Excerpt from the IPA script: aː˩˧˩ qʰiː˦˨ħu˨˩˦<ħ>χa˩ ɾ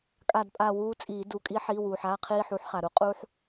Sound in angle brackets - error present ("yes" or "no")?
no